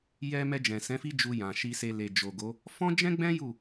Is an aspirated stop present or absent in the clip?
absent